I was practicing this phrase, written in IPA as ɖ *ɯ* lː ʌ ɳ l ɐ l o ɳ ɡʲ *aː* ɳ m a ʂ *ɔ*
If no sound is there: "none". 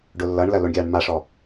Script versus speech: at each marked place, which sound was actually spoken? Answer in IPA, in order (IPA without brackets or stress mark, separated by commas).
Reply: ʊ, aː, ɔ